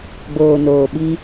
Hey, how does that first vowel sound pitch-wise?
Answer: low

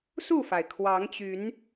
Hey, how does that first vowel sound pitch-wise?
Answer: falling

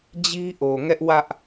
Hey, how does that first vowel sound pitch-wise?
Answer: high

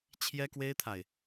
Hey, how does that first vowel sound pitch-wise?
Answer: high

